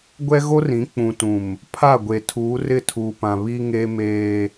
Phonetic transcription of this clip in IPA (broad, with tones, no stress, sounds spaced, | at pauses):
ɡʷ ɛ˦ ɣ o˦ r ĩ˨˦ k͡p ũ˨ t ũ˨ m | pʰ a˦˨ ɡʷ e˨ tʰ uː˨˦ r ɪ˦˨ tʰ uː˨ p ã˨ β i˦ ŋ e˦ m eː˦